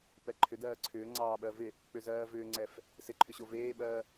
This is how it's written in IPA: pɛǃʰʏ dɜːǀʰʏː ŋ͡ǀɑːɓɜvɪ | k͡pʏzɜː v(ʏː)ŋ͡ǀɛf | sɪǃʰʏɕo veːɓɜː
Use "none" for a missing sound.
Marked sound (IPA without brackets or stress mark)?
ʏː